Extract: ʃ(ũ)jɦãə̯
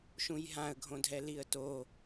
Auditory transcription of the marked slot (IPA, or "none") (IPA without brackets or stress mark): ũ